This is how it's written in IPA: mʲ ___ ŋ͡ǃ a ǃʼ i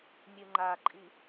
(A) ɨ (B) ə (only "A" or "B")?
A